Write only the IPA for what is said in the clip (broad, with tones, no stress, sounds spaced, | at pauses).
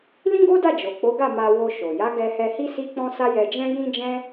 l ĩ˦ ɡ o˦ d a˦˨ d͡ʒ o˨ k͡p o˨˦ ɡ a˦˨ m a˧ w o˧ ʃ o˨ j a˨˦ ɡ ɛ˧ h ɛ˧ h i˦ s i˦ k͡p ɔ̃˦ s a˦ j ɛ˧ d͡ʒ ɛ̃˦ j ĩ˦ d͡ʒ ɛ̃˦